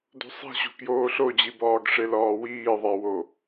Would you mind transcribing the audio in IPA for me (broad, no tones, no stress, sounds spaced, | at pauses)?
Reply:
d o̤ sˤ i̤ ɕ o̤ k j oː ɬ o d͡ʑ i b ɒː ɡ ʂ e l ɒː w iː ðˤ a w o